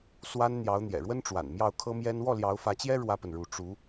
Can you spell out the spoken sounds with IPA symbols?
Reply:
s w a˥ n n̪ j ɑ˧˥ ʊ̯ n̪ j ɛ̰˨˩ ɻ w ə˥ n ʈ͡ʂ w a̰˨˩ n m j ɑ˥˩ ʊ̯ kʰ ɤ˥ m j ɛ˥ n w ɔ˥˩ l j ɑ˧˥ ʊ̯ f ä˧˥ t͡ɕ j ɛ˥ ɻ w ä˥ p ə˨ n ɻ u˧˥ ʈ͡ʂ u˧˥

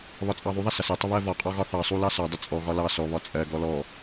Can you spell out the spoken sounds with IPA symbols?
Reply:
β ɒ t͡sʼ ɑ ðˤ u ðˤ ʌ s ʌ s ɜ tˤ ə β ɜ v ɒ qʼ ɒ ɣ ɒ θ ɑ sˤ u l ɑ s ɒ dˤ ə t͡sʼ ɔ ɣ ɒ l ɑ s ɔ β ɒ t͡sʼ ɜ ɡ ɔ l ɔ

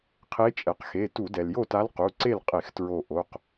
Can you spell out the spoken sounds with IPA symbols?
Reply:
qʰ e˧˥ t͡ʃʼ ɛ˩ q x e˩˧˩ t u˧˩˧ d ɛ˩ l j o˥˨ t a˧˥ l q u˩˧˩ ǀ e˥˨ l qʼ e˧˩˧ x t ɹ o˧˩ ʔ o˩˧˩ q

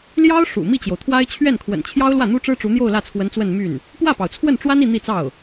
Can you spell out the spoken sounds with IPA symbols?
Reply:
l j ɑ˥ ʊ̯ ʂ ṵ˨˩ m i˥˩ t͡ɕ j o˩ ʊ̯ t̪ʰ w a˥ ɪ̯ t͡ɕʰ ɥ ɛ˥˩ n kʰ w ə̰˨˩ n t͡ɕʰ j ɑ˥ ʊ̯ l w ä˥˩ n̪ u˥ ʈ͡ʂ ɻ̩˥ ʈ͡ʂ u˧˥ n̪ j o˥˧ ʊ̯ l ä˥˩ t͡sʰ w ə˧˥ n t͡s w ə˥˧ n m y˥˩ n | p w ä˥˩ p ɑ˩ ʊ̯ t͡sʰ w ə˥˩ n ʈ͡ʂ w a˥ n i˥˧ n̪ i˥˧ t͡s ɑ˥˩ ʊ̯

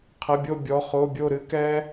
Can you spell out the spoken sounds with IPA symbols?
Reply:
qʰ ɐ˩˧˩ bʲ o˧˩ bʲ ɔ˩˧˩ χ o˩˧˩ bʲ o˧˩ ɾ ɨ˧ k ɛ˧

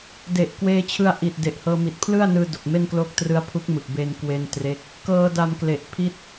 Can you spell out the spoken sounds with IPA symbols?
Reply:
d e˨˩ ʔ k w eː˧ t͡ɕʰ ɯ˧ a̯ ʔ i˨˩ t̚ d e˨˩ ʔ h ɤː˧ m i˨˩ t̚ pʰ l ɯ˥˩ a̯ n ɯː˧ d o˨˩ k̚ m e˥˩ n k l o˦˥ k̚ t r ɯ˦˥ a̯ pʰ u˦˥ k̚ m ɯ˨˩ k̚ b e˧ n k w e˧ n t r e˦˥ k̚ | k ɤː˧ d a˧ m k l e˨˩ ʔ pʰ i˦˥ t̚

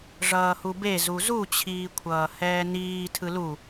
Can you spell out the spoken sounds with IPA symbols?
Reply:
ʐ ʌː h u b e z u z u t͡ɕʰ iː kʷʰ ʌː h ɛː n iː tʰ ɯ l u

